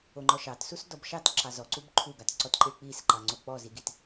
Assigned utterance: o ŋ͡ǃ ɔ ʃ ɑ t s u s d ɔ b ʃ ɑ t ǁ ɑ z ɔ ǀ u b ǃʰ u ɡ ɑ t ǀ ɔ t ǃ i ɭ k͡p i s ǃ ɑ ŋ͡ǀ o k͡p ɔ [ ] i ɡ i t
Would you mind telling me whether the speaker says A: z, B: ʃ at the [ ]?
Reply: A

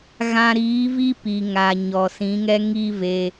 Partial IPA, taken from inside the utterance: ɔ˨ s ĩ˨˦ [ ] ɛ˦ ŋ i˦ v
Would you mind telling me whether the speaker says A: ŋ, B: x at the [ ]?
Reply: A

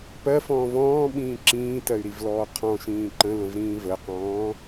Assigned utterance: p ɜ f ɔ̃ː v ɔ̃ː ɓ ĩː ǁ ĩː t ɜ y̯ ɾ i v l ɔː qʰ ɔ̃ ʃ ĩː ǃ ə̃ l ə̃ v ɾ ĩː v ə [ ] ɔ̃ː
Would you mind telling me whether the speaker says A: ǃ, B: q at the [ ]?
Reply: B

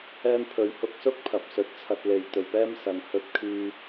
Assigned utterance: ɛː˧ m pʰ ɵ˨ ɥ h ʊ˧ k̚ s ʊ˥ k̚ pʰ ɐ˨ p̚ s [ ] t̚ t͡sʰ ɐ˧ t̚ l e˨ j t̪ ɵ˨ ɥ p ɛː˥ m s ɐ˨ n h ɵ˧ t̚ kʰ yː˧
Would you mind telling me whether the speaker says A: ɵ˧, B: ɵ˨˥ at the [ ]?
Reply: B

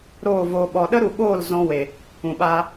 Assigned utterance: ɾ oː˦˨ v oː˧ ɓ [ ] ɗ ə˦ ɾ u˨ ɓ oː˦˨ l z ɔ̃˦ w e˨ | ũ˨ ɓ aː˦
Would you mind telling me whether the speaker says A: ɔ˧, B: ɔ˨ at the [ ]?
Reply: B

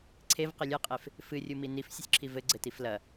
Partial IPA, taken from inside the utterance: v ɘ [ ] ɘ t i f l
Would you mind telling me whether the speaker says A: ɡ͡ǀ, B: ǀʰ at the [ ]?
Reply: A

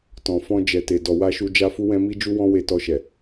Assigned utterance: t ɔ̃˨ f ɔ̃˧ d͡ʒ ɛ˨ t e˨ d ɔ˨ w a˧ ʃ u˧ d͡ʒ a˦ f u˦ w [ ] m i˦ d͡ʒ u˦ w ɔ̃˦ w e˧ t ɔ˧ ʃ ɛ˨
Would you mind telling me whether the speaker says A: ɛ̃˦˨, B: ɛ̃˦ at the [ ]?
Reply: B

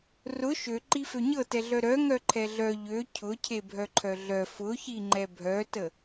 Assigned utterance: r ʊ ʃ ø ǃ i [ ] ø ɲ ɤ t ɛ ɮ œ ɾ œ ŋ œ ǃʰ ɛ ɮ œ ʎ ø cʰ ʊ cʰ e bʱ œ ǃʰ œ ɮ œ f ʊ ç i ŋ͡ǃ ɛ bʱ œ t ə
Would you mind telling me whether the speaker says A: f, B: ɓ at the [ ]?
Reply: A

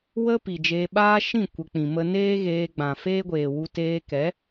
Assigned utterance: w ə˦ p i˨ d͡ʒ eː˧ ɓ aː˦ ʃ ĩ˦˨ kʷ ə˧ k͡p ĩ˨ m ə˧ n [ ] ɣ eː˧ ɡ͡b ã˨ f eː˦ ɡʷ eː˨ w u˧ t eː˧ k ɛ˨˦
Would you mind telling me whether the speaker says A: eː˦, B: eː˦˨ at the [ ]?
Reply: A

